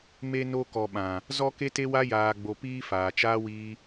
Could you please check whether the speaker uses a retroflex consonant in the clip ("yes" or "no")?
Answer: no